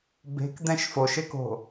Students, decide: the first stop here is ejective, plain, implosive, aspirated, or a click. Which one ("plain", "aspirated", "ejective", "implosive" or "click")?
plain